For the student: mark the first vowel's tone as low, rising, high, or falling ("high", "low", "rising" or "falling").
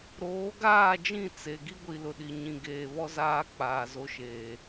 rising